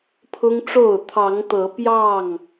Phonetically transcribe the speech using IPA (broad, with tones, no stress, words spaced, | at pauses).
pʰʊ˦ŋʈ͡ʂo˥˨ʊ̯ t̪ʰɑ˨˦ŋt̪ɤ˨˦pjɑ˥˨ŋ